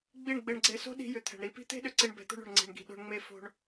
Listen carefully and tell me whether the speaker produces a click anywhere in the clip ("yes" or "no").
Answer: yes